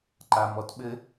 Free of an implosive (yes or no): no